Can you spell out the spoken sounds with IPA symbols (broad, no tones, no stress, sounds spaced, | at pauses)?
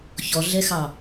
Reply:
ç ɔ ɮ ɛ x ɑ